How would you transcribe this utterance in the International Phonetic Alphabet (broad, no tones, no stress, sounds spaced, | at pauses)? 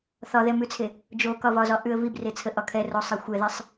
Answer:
θ ɒ ð ɛ m ʉ t͡sʰ e | d͡ʒ o k ɒ v ɒ z ɒ ʔ ʉ ə̯ v i b r e t͡sʰ ə ʔ ɒ kʰ ɛ r o sˤ e xʷ ɛ ð i sˤ